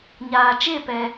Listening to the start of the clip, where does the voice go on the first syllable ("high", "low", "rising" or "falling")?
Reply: low